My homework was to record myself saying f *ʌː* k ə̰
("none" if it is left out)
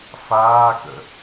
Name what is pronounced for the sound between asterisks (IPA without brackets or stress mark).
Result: aː